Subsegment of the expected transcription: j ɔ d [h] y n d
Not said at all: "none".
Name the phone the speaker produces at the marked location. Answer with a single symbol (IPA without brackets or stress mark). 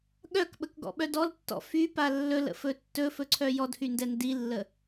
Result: h